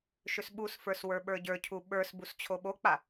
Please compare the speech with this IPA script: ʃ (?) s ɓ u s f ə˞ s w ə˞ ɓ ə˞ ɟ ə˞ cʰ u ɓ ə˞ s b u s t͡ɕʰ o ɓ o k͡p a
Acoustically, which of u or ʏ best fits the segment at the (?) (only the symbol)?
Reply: ʏ